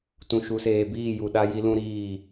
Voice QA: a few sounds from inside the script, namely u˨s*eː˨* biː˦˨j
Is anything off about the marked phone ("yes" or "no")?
no